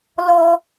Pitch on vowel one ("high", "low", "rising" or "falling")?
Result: high